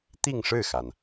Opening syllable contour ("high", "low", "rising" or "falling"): falling